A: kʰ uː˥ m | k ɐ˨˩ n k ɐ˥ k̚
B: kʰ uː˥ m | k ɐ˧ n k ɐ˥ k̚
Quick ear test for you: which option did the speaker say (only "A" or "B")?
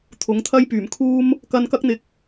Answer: B